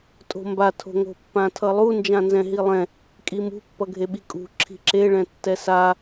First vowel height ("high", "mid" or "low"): mid